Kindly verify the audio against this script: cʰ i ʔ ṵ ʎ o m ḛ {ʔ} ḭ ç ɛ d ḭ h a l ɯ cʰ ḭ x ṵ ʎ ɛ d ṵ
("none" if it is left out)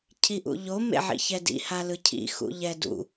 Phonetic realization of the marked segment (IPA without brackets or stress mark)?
ʕ